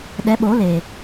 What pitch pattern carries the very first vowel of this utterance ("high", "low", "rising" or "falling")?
rising